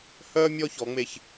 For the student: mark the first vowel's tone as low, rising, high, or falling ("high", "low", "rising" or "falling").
high